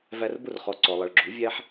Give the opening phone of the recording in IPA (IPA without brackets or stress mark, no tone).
v